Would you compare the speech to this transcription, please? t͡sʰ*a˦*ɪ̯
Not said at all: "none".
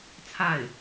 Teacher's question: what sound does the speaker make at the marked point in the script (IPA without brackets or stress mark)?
a˥˩